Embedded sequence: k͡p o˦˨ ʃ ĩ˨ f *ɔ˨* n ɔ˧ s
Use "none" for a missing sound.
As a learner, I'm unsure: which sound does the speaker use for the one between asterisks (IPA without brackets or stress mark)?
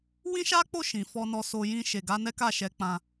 ɔ˧